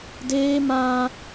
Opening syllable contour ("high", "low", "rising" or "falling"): high